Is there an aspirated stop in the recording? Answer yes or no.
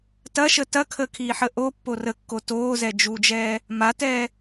yes